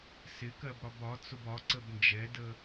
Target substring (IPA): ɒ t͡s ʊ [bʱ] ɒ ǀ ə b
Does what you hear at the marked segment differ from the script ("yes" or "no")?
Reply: yes